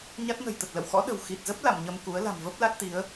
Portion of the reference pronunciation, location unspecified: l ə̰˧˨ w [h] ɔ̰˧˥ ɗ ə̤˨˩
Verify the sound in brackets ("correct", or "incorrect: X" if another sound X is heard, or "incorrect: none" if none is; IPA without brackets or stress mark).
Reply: incorrect: x